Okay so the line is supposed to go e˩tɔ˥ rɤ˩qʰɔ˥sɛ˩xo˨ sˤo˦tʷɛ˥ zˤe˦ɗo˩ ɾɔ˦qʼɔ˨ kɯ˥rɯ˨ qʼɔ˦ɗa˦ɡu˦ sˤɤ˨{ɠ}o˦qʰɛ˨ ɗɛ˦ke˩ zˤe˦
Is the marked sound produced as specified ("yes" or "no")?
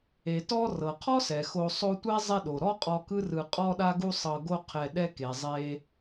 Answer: no